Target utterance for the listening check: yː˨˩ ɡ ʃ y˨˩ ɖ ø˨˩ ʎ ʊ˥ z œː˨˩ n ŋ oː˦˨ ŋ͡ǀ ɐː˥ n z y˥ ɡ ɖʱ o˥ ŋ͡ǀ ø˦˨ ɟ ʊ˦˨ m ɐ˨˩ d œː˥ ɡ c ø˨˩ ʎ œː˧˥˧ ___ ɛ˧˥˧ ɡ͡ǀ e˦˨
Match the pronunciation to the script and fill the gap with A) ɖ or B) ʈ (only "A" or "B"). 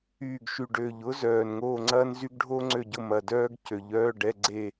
A